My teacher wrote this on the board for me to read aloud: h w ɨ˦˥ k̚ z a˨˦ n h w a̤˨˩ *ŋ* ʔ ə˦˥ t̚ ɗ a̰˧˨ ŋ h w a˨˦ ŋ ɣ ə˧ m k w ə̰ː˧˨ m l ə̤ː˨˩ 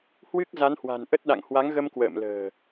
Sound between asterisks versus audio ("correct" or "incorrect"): incorrect